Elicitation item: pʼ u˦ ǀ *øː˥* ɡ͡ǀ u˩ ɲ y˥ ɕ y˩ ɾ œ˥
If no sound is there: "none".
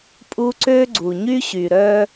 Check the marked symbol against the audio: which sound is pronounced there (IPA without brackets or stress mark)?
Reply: øː˥